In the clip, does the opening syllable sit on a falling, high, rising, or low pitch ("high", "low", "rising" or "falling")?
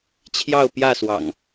falling